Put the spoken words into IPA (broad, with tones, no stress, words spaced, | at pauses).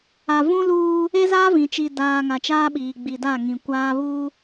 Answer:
a˨vũ˦luː˦ | e˦zaː˦vĩ˨ t͡ʃi˨daː˨ ŋa˨t͡ʃaː˦ɓiː˨ ɡ͡bi˨da˦˨ ŋĩ˨kʷaː˦βuː˦